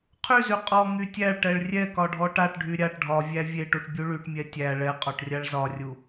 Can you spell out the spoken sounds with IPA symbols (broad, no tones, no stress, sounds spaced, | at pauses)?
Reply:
qʰ y z y qʼ ɔ ŋ y tʲ æ ɭ ʈ ɛ ɭ rʲ ɛ k ɒ ɖʱ ɔ ʈ a ʈ ɖʱ y ɾʲ a ʈ ɖʱ ɒ vʲ æ vʲ e ʈ u ʈ bʲ u ɭ y ʈ mʲ ɛ tʲ æ ɭ ɛ qʼ ɔ ʈ rʲ a ɭ z ɒ rʲ u